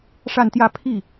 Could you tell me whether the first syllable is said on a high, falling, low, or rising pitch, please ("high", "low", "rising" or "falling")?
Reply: falling